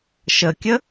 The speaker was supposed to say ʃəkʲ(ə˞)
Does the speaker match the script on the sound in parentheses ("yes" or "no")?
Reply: no